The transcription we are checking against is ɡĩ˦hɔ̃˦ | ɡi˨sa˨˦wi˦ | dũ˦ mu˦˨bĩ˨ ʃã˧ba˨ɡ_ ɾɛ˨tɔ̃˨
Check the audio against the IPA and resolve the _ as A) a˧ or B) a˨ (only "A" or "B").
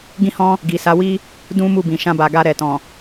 A